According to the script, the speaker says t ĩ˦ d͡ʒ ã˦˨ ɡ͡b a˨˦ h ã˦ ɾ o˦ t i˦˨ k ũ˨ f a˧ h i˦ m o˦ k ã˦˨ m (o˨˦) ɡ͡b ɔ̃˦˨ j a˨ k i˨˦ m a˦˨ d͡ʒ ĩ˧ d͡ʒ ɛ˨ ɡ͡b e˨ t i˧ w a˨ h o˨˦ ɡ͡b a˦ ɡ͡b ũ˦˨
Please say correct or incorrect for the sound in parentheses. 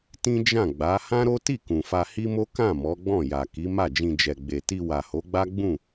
incorrect